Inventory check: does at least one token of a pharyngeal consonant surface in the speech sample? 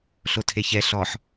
yes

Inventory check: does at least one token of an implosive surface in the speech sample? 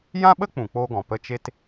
yes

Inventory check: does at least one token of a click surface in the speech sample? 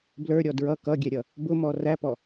no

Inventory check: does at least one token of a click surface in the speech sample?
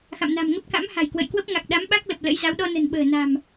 no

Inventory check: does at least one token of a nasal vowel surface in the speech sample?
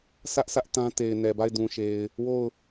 yes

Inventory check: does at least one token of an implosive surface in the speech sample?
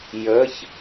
no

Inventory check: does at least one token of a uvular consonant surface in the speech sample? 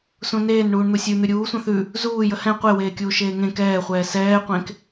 yes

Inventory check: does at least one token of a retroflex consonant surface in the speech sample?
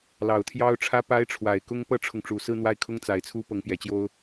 yes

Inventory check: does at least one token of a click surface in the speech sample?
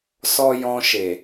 no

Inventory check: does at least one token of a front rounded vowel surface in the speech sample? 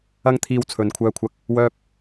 yes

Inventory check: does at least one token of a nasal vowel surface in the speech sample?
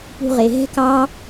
no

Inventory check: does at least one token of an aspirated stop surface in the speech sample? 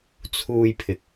yes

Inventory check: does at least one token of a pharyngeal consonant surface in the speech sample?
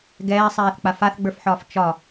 yes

